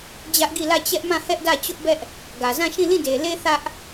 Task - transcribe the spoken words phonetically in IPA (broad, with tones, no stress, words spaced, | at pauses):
d͡ʑä˦ʔ ɡi˦˨lä˦˨ t͡ɕɛ˦ʔmã˦˨hɛ˦ʔdä˦˨ t͡ɕʊ˦ʔbɛ˦ʔ | ɡä˨zã˦˨ʃĩ˦˨ lĩ˦˨de˨le˦ θä˦ʔ